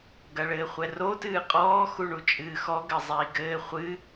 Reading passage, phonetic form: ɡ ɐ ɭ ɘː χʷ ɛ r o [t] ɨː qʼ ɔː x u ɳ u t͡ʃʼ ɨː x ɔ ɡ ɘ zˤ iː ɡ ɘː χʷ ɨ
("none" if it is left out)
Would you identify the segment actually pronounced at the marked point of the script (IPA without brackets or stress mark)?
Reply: t